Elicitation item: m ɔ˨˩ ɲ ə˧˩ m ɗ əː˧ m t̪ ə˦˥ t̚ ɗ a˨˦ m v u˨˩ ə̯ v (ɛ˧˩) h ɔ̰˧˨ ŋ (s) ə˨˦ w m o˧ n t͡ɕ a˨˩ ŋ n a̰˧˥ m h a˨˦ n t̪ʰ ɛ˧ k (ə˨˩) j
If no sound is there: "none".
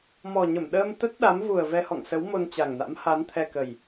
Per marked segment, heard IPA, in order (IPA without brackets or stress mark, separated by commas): ɛ˧, s, ə˨˩